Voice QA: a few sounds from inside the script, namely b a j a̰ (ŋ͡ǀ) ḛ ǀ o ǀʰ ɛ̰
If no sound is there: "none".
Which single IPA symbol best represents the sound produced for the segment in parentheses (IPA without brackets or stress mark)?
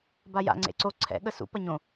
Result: ŋ͡ǀ